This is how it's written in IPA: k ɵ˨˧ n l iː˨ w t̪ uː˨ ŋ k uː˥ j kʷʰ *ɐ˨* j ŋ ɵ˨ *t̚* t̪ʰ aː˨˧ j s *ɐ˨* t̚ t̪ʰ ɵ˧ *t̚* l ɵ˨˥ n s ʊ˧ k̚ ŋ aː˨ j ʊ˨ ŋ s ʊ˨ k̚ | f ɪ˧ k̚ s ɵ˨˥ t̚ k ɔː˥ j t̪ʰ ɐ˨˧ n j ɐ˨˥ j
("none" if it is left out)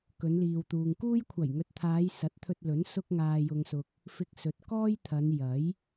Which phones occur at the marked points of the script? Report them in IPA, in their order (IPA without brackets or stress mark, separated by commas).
ɐ˨˩, t̚, ɐ˨˥, t̚